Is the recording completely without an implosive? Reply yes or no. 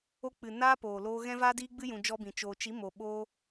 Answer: no